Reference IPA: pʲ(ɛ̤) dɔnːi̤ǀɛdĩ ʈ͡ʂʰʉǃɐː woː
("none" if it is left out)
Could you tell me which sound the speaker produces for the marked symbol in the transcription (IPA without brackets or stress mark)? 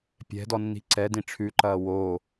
ɛ̤